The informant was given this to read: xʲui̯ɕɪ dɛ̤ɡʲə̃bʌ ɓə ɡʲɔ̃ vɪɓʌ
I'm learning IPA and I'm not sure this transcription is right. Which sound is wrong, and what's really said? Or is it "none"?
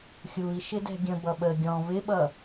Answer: ɕ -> ʃ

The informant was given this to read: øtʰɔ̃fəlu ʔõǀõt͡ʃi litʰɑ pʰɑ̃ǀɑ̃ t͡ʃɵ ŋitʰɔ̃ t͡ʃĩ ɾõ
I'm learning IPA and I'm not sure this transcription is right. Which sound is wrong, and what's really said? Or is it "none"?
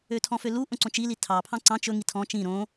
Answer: ə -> ø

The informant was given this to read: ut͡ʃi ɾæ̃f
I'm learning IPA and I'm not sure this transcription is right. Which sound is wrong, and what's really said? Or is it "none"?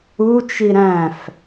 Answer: none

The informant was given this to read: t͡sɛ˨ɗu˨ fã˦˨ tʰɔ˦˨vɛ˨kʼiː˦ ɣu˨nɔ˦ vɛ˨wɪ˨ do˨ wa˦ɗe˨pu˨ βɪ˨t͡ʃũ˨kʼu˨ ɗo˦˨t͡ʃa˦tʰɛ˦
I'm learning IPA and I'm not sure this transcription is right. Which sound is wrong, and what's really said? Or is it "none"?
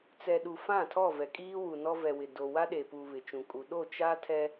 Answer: ɣ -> w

